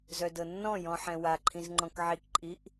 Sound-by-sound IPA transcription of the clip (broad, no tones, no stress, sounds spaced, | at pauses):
z œ d ɤ nː ɔ̃ j ɔ̃ ħ ɛ̃ w a ǃʰ ĩ z ŋ͡ǃ ɔ̃ k ʕ i k ǃʼ i ʔ